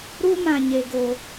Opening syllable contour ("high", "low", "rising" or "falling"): high